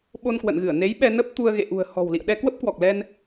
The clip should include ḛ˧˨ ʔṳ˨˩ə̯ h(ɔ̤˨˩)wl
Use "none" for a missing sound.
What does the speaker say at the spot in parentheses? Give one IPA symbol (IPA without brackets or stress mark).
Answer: ɔ̤˨˩